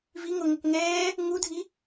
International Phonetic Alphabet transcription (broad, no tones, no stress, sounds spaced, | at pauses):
v i ŋ o ŋ ə k ŋ ɛː | ŋ u dʱ i